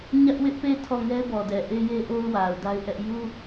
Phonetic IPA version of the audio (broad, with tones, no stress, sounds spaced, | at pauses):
ɲ ä˦ ʔ w ɪ˦ ʔ p e˦˨ tʰ ɔ˦˨ ŋ ɛ˦ b ɔ˨ d ɛ˨ ʔ e˦ j e˦ ʔ o˦ ʊ̯ w a˨ ʊ̯ d a˦ ɪ̯ ʔ ɛ˦ ʔ j u˦